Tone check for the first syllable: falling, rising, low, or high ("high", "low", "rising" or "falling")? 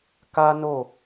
high